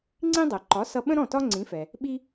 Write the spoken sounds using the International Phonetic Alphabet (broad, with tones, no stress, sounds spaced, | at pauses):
ŋ͡ǀ ĩ˥ dˤ ɜ˩ ǃ ɒ˩˥ s ʌ˧ ɓ ə̃˥ ɾ ɔ̃˥˩ t ɒ˥ ŋ͡ǀ ĩ˩˥ f ɛ˩ | ɓ i˧